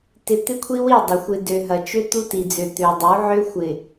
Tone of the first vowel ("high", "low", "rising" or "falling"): low